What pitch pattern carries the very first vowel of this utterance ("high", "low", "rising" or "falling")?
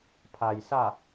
low